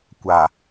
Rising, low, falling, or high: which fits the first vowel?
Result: low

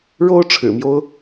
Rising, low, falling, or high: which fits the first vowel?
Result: high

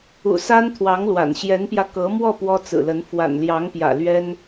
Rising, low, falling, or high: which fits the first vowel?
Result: low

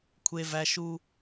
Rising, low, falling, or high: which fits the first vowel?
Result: high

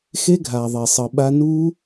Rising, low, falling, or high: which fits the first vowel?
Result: high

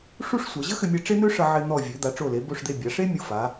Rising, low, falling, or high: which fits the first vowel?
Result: high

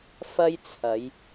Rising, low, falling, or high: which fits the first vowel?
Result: high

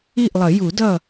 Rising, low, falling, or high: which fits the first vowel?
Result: falling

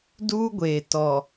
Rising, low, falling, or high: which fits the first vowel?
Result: high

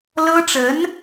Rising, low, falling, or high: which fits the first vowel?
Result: high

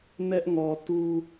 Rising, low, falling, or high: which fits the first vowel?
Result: high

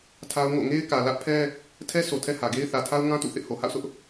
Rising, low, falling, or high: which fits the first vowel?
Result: high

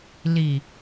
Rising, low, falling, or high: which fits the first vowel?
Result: low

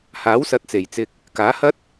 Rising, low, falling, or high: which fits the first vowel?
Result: rising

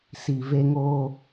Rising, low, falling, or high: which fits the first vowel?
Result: low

